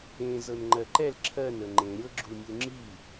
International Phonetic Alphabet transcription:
ẽ z ɤ n ŋ͡ǃ ɜ ǃ ɛ l ǁʰ ɜ n ə ŋ͡ǃ ẽ ɾʲ ɤ ɡ͡ǁ u nʲ u ŋ͡ǁ i

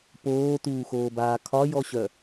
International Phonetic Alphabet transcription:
p oː t uː x oː b aː kʰ ɒ j ɔ ɕ œ

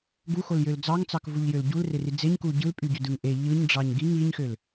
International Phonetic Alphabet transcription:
ɡ u x o l j ø l d͡z ɑ ŋ t͡s ɑ k v u ʎ j ø l ɟ u l r e r i d͡z e ɲ k u ɟ ɯ l pʼ y ɟ ø d ɯ ŋ ʔ e ʎ ɯ ɲ ɖ͡ʐ ɑ ɲ ɡ i ŋ i ɲ x ø l

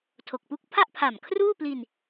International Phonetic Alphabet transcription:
tʰ o˨˩ k̚ p u˥˩ k̚ pʰ a˥˩ ʔ pʰ a˨˩ m kʰ r uː˥˩ p l i˧ n

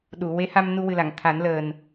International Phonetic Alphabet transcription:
ɗ u˨˩˨ w e˧˥ h a˧ m n u˧ w ɨ˨˩ l a˨˩˨ ŋ t̪ʰ a˨˩˦ n l əː˨˩ n

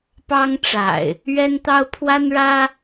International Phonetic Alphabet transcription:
p ɑ˦ ŋ ʈ͡ʂ a̰˨˩ ɪ̯ | ɥ ɛ˦ n t̪ ɑ˦ ʊ̯ pʰ w a˦ n ɻ ä˦

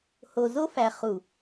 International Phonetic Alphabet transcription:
h o˨ z o˦ f æ˨ χ u˨

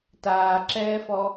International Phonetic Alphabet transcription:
t aː ǁ ɛː f ɔ

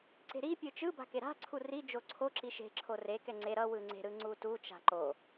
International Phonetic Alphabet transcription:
ǀ e̤ ɾ i pʲ ɯ t͡ʃ ɯ b a̤ k e ɾ a̤ ǀʰ u r i d͡ʒ o ǀʰ o ǁ i ʃ e̤ ǁʰ o r e k ɛ ŋ͡ǀ e ɾ ʌ w ɯ ŋ͡ǀ e̤ ɾ ɯ ŋ͡ǀ u t u t͡ʃ a̤ ǃ o

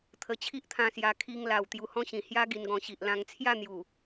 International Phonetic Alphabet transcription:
t̪ʰ ə˧ t͡ɕʰ i˦ ʔ t̪ʰ ã˧ s j a˧ kʰ i˧ ŋ l a˨˩ w t̪ j u˧ h ɔ̃˦ ɕ ĩ˨˩ h j a˦ ɡ i˧ n ɡ ɔ̃˧ ɕ i˨ ʔ l ã˧ ŋ t͡sʰ j a˥˧ n̪ j u˨˩

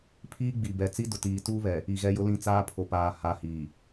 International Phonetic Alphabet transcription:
pʰ iː˦ ɡ͡b i˨ b ɛ˨ t͡s i˦ d ʊ˨ t iː˨ t uː˦ β ɛ˨ | i˨ ɣ ɛ˦ j ʊ˦ l ĩ˦˨ t͡s aː˦ pʰ o˨ p aː˨ h a˨˦ h iː˨

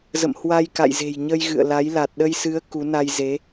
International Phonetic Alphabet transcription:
z ə̰˧˨ m h w a˧ j k a̰˧˨ j z e̤˨˩ j ɲ ə˧ j ɣ ɨ̰˧˨ ə̯ l a˨˦ j l a˨˩ t̚ ɗ ə˧ j s ɨ˨˦ ə̯ k u˨˦ n a˧ j z e˨˦

